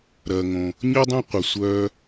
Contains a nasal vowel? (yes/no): yes